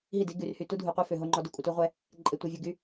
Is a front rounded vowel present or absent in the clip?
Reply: present